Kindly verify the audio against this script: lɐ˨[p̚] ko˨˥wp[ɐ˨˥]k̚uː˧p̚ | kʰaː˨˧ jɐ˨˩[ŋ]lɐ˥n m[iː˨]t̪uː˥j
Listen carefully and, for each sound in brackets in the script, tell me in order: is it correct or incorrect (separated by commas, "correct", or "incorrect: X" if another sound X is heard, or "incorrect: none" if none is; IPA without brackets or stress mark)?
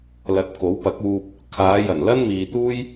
incorrect: t̚, correct, incorrect: n, correct